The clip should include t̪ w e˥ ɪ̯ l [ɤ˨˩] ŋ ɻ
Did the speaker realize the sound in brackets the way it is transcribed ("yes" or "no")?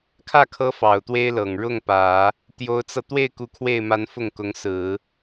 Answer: yes